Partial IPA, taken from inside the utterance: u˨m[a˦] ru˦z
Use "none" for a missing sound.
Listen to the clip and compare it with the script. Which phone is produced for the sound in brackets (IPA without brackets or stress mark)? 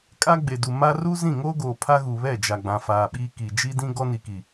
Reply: a˦